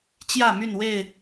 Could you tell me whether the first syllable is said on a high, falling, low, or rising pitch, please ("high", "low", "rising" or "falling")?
falling